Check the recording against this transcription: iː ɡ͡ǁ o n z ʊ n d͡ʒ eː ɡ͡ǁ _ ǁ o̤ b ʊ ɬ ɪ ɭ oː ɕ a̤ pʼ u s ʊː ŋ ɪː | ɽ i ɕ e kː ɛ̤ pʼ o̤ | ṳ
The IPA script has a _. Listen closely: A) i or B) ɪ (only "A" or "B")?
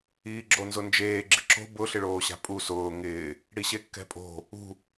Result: B